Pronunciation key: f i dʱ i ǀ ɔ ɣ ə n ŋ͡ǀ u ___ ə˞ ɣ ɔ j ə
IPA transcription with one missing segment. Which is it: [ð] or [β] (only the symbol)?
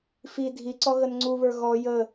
β